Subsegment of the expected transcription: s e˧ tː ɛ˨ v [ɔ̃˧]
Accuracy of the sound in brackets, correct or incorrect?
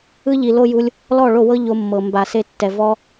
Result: incorrect